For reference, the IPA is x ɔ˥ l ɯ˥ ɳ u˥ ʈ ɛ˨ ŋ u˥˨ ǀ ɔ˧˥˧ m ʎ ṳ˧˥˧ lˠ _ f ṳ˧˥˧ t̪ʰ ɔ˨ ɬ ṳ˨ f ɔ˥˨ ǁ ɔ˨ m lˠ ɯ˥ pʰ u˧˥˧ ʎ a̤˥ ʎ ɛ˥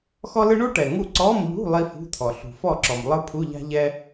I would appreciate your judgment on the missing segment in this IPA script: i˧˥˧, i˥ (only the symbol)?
i˥